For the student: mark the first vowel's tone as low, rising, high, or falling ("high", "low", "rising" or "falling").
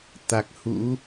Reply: low